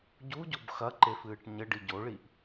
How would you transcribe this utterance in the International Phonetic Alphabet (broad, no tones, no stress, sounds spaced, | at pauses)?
ɟ u ɟ o b x ɐ ǃ e f ɨː ʈ ɲ ɘ ɖ i ɟ o ɭ i ʔ